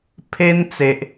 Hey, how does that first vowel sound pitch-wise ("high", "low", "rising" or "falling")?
high